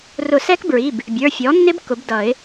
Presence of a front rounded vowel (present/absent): absent